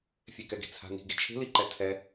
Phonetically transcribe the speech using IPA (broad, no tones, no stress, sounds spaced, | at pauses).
fʲ e k ɛ ɡ i̤ t͡sʰ a̤ n i̤ ɡ i t͡ʃʰ e̤ l i ǃ ɛ tʰ ɛ